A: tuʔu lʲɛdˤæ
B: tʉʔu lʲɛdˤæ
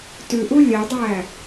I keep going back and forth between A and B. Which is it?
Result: B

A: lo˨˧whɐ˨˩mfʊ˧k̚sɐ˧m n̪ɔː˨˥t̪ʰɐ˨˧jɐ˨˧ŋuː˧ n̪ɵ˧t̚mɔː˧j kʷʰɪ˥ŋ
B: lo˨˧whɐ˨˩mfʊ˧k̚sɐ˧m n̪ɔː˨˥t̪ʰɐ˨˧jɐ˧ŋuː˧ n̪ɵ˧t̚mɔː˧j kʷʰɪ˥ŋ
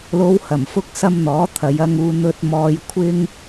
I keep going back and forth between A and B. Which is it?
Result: B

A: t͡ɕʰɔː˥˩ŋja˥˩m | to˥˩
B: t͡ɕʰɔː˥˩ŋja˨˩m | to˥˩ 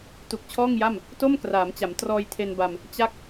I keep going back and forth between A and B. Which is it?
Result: A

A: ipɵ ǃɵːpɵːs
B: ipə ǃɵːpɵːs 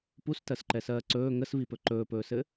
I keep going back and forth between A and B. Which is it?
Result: A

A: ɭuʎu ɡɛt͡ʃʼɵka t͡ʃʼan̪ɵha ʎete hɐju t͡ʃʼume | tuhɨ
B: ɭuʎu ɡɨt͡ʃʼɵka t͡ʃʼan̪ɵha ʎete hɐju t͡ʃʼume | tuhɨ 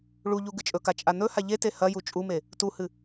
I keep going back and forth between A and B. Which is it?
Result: B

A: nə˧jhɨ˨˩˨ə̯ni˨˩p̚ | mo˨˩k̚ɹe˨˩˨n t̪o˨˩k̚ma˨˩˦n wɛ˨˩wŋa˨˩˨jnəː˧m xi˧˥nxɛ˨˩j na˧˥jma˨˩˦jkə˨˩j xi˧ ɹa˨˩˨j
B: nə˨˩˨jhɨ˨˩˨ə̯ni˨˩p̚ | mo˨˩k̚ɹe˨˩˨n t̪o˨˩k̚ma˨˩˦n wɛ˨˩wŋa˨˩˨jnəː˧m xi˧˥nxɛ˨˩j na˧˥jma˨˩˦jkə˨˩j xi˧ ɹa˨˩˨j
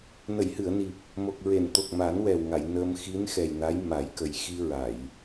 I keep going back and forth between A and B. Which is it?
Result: B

